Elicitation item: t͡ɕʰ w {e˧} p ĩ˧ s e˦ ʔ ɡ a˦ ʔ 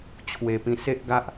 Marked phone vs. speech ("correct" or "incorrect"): incorrect